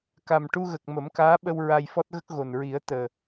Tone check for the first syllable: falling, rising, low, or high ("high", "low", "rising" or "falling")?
low